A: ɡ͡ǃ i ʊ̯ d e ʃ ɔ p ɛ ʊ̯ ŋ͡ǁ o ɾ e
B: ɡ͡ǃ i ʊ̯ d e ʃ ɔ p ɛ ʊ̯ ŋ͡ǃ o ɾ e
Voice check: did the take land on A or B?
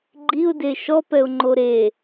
B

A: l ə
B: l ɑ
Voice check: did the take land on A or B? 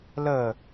A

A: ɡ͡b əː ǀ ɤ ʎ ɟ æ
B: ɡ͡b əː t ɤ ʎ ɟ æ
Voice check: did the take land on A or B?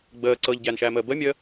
A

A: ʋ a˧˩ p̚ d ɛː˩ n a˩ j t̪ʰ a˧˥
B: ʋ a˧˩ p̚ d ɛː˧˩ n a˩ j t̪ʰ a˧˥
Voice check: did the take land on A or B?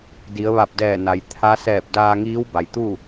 B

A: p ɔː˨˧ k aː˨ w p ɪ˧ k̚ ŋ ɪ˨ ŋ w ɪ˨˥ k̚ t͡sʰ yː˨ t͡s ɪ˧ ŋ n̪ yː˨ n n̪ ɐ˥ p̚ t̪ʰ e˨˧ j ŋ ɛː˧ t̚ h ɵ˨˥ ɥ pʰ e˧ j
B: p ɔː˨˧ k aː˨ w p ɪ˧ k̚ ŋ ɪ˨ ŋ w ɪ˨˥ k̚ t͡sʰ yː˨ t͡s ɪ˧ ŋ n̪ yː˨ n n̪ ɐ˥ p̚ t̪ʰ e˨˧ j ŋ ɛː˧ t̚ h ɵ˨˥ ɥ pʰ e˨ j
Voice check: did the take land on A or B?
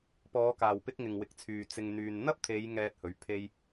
A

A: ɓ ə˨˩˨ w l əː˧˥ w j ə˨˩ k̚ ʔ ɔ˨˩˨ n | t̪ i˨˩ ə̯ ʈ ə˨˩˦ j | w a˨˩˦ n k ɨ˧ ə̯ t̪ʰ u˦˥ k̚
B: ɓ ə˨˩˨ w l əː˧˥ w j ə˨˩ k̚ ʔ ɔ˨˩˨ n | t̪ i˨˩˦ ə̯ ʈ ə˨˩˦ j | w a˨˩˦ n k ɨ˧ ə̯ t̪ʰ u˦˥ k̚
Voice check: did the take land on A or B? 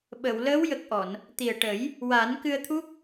A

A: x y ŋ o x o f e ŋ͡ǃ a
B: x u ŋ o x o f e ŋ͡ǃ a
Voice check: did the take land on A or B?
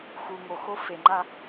B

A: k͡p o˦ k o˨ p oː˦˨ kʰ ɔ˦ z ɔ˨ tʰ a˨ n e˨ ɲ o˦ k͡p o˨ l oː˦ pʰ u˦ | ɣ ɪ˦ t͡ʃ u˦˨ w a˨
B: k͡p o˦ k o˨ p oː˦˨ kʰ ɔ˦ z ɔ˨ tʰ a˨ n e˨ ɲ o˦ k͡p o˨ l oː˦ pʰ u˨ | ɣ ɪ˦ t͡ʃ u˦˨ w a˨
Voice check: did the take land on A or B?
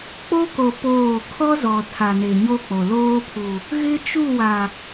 B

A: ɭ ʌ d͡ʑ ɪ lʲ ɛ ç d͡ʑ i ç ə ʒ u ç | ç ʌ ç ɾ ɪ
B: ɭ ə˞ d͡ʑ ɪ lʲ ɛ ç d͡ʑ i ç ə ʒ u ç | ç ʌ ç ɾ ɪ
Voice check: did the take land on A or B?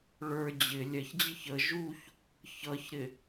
B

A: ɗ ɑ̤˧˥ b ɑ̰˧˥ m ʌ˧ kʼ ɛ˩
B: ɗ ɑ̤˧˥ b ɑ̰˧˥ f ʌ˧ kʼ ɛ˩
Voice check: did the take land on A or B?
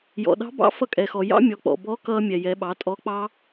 B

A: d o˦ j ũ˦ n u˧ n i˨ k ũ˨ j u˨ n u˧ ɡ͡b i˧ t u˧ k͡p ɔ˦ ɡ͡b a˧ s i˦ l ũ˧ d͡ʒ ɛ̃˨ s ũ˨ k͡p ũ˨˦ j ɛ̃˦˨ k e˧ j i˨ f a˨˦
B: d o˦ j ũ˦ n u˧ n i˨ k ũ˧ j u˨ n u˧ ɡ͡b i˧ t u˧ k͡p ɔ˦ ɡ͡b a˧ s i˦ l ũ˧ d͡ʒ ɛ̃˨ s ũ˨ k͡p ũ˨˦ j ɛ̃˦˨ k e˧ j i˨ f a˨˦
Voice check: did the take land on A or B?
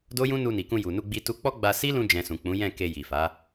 B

